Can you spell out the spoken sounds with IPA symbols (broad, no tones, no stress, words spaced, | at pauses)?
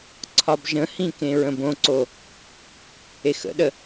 ǀʰɒbʒə̃hĩ kẽɹə̃bõǀo | exə̰ɗə